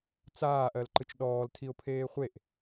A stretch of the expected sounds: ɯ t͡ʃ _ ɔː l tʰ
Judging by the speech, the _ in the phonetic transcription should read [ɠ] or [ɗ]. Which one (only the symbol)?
ɗ